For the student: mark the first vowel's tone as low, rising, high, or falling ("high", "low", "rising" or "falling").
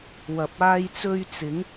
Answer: low